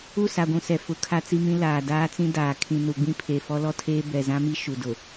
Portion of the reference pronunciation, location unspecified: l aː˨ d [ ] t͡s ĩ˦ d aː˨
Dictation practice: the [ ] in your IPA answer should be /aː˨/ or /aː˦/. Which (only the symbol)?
aː˦